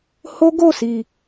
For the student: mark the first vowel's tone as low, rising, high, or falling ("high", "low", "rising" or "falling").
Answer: high